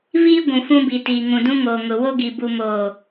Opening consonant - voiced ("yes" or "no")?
yes